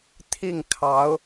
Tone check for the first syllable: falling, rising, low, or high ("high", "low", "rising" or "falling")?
falling